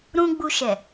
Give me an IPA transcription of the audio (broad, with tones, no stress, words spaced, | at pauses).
ɾũ˧ ɡ͡bu˧ʃɛ˨